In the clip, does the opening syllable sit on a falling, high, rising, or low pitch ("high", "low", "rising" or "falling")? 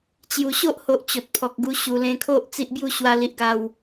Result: low